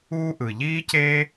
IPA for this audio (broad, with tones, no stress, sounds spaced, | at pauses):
uː˥ ʔ ɯ˨˩ ʎ iː˥ c eː˥